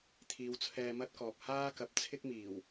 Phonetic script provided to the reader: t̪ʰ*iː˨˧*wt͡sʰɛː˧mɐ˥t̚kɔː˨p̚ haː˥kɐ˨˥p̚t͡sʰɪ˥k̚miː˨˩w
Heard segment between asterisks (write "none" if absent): iː˨˧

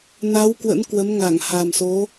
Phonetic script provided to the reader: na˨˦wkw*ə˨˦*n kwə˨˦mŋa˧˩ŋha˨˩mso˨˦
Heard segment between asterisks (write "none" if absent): ə̰˧˥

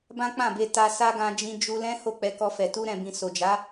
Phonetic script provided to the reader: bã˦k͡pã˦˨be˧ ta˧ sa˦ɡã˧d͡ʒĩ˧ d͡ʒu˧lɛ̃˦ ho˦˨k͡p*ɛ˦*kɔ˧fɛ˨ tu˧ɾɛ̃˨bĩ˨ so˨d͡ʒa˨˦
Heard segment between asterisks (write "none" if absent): ɛ˧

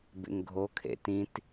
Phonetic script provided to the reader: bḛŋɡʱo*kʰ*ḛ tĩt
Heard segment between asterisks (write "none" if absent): kʰ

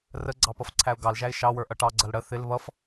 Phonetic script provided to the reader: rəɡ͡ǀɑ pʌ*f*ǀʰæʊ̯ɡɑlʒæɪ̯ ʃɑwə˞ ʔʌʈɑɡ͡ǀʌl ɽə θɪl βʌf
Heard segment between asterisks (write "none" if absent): f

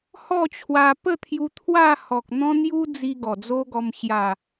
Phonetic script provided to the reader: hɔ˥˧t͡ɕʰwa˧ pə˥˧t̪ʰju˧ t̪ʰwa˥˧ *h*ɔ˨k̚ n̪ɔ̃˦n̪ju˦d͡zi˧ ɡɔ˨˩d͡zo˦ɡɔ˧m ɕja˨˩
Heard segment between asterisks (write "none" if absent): h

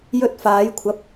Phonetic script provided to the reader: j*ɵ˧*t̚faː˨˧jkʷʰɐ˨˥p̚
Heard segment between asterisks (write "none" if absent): ɵ˧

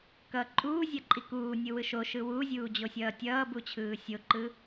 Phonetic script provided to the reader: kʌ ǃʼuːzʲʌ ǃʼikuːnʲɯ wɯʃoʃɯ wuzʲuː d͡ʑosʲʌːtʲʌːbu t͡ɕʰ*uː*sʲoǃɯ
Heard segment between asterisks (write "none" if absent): ɯː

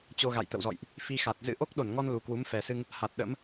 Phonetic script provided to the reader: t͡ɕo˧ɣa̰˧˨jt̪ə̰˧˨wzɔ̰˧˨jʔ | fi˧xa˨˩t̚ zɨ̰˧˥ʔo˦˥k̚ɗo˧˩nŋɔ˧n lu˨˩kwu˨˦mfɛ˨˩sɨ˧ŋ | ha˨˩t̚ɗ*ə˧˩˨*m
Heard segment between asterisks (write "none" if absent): ə̰˧˥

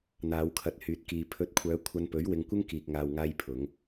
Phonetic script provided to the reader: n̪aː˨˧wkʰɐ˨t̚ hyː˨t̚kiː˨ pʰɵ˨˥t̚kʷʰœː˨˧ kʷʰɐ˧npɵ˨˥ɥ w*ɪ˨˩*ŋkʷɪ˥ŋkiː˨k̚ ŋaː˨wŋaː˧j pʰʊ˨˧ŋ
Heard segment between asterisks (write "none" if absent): ɪ˧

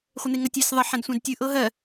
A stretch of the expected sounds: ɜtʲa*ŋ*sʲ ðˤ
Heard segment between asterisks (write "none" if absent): none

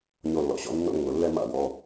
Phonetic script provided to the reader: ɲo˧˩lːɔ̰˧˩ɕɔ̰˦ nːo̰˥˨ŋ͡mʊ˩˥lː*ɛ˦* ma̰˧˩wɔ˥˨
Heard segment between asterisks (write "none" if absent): ɛ˦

